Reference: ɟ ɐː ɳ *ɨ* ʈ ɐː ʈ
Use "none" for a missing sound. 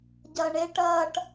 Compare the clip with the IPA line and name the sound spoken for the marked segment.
e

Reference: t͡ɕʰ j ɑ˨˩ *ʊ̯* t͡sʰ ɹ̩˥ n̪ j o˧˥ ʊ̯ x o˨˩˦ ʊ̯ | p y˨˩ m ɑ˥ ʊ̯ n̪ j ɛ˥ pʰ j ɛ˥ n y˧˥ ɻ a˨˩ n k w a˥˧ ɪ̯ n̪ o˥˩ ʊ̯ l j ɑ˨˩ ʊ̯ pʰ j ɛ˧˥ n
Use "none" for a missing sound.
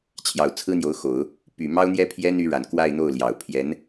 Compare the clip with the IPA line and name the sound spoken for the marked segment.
ʊ̯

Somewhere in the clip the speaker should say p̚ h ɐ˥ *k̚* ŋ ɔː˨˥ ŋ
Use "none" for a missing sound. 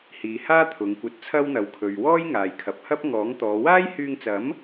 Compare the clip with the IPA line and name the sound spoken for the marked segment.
p̚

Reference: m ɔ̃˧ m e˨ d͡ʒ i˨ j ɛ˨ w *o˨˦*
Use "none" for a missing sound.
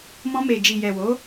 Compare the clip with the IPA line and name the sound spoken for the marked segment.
o˨˦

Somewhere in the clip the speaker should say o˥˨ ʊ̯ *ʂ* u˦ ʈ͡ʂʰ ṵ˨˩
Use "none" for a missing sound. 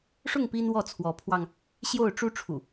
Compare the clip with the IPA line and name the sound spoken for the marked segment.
ʈ͡ʂ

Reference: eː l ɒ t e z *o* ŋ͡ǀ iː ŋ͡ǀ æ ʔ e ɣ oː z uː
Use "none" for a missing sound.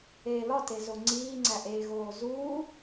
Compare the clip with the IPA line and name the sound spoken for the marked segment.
o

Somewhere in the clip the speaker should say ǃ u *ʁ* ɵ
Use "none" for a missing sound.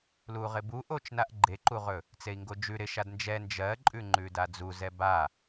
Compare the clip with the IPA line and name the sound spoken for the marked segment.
ʁ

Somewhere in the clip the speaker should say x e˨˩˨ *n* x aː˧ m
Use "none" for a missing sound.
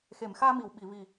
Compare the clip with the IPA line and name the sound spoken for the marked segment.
m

